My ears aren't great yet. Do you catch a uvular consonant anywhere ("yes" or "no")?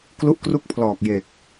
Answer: no